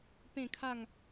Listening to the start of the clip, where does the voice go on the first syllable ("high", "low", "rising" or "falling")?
falling